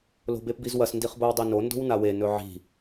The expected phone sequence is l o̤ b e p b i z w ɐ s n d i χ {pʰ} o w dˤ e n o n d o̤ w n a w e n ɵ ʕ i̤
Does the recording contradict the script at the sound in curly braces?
yes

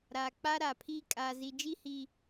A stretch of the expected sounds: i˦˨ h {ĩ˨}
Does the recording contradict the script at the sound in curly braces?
yes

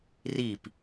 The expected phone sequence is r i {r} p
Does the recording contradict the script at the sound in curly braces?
yes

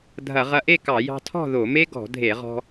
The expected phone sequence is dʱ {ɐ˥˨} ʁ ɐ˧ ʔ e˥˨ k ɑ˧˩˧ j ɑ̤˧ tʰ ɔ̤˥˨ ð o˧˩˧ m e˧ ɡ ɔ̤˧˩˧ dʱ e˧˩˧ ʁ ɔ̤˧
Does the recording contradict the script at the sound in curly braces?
yes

